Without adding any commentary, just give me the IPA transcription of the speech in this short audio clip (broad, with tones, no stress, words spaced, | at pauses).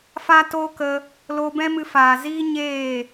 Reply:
fa˦toː˦kə˧ | loː˧bɛ̃˦mɨ˧ faː˨ziː˦ ɲeː˦˨